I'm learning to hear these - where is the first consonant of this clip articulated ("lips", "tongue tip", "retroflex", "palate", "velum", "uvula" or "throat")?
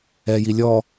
palate